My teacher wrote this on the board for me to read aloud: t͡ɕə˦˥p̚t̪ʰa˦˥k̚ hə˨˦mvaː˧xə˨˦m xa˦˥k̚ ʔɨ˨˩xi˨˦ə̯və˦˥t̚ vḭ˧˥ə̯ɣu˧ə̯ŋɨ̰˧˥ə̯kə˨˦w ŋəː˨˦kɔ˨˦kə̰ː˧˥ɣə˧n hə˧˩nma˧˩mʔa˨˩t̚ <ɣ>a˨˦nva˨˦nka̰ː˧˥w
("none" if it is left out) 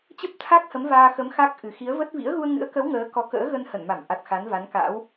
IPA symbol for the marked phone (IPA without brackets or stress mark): x